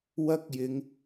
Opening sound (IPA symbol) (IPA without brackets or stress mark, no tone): w